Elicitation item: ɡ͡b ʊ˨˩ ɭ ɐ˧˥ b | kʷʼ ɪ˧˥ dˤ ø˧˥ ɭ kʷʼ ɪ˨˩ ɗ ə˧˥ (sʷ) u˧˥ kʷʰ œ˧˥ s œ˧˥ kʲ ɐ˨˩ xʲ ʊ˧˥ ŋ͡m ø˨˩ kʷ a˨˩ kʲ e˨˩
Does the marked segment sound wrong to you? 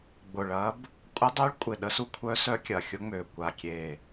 yes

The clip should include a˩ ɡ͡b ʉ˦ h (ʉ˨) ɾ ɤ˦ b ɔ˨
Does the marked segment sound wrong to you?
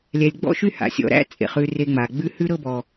yes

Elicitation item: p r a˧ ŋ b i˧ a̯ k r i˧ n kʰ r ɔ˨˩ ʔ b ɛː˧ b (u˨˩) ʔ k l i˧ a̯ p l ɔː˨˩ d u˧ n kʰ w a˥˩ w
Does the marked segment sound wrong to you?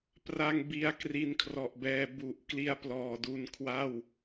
no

